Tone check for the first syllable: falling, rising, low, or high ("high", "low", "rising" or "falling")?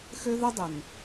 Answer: high